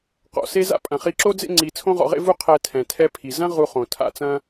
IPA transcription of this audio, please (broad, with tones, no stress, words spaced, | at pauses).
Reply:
qɔ̰˩se˥za̰˥ pʼɐ̃˩χi˧ǁo˥d͡zḛ˥ ŋ͡ǀi˧ t͡sʰõ˥ʁɔ̰˧ʁḛ˥vu˥ qʰɛ˧ tʰɛ̃˩tʰɛ˧pʰi˩ zɐ̃˥ ʁu˧χõ˩ tʰa̰˧t͡sɐ̃˥